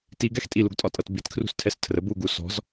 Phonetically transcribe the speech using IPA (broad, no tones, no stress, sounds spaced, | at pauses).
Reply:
t i ɡ ɛ x tʼ i l u ɡ tʼ ɒ tʼ ʌ t b i t kʰ r ṳ s tʰ ɛ s tʰ r ə b u ɡ u s ɔ̤ z